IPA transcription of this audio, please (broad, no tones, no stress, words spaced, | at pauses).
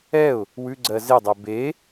ɛʊ̯ | wʉɡ͡ǀɜ zedˤɜ be